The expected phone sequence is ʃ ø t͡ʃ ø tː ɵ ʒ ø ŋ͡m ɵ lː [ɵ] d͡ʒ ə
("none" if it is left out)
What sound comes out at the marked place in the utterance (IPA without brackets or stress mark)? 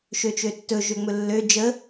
ø